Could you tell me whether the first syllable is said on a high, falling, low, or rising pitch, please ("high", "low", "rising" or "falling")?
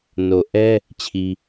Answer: low